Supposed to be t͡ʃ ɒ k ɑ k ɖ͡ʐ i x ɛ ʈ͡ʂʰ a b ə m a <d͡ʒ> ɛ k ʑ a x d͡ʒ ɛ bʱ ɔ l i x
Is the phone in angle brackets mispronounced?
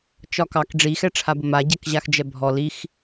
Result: yes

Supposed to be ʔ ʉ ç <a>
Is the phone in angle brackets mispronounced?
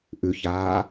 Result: yes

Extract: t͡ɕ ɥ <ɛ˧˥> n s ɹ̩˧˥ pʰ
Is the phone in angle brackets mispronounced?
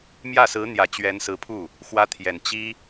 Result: no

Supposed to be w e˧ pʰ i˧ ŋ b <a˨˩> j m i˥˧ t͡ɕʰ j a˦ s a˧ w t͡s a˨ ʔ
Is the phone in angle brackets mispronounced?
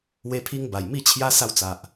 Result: no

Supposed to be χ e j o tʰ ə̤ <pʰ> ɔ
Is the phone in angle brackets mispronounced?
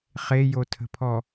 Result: no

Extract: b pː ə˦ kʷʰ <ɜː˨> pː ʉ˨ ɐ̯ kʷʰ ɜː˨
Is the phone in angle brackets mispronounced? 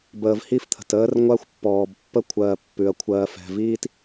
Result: no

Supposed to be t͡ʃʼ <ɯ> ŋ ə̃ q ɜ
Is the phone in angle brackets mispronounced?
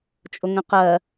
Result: yes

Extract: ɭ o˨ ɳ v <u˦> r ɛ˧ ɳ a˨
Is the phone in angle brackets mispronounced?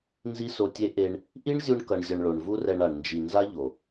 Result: no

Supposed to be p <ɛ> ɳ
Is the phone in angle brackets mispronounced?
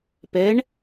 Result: no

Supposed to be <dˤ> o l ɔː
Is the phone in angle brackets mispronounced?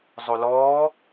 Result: yes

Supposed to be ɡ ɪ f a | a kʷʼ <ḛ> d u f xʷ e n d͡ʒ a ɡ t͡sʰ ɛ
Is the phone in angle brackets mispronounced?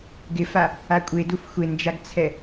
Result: yes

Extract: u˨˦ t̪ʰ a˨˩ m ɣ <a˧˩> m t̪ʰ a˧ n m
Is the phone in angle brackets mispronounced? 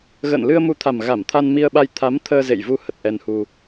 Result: no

